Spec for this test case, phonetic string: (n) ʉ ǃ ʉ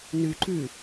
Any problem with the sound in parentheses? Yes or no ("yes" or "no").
no